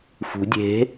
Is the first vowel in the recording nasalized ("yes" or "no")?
no